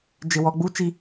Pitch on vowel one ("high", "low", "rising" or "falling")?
low